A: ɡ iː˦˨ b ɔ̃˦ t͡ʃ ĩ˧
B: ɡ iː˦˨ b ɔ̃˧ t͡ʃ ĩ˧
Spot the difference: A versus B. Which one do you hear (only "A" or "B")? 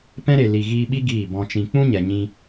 B